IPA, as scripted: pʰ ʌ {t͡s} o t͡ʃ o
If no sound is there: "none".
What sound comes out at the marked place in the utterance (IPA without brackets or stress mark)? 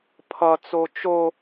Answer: t͡s